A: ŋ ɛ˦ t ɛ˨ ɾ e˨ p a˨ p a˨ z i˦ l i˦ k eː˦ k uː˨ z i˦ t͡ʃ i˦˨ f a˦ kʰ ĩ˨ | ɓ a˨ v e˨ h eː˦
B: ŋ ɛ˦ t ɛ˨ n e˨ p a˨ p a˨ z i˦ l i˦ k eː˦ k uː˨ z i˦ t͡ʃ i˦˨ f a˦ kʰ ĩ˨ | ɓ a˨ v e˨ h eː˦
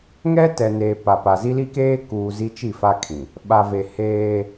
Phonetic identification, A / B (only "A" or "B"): B